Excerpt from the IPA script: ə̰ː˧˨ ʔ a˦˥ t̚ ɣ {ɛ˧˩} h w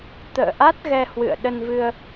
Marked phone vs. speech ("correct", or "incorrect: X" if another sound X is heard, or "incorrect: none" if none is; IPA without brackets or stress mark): incorrect: ɛ˧